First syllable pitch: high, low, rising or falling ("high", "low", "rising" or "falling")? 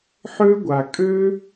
high